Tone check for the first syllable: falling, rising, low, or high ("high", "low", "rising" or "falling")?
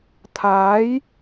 rising